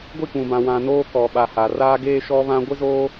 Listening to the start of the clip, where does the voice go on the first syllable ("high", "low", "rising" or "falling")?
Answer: falling